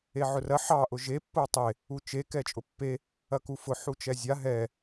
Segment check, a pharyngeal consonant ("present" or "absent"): present